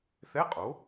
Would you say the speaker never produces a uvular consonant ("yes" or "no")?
no